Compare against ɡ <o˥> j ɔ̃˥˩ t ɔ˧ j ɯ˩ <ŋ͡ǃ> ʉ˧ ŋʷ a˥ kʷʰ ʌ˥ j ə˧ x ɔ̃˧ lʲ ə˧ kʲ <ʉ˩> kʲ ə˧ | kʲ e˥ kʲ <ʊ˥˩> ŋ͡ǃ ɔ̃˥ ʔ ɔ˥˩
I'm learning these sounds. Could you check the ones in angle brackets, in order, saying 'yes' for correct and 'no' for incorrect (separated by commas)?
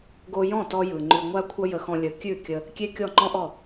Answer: no, yes, no, no